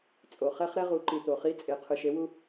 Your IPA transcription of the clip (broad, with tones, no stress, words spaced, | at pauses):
t͡sʼo˩χɛ˥χ ɾɛ˥ʁu˩˧ǃi˩ t̪o˩χi˧˥ t͡sʼe˩ qʰɯ˩ʃe˩˧wu˧